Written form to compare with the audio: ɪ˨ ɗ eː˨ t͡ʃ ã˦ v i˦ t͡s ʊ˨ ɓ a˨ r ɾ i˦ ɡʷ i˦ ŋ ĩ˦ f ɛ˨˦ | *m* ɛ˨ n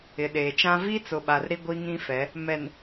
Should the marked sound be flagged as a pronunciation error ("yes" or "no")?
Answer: no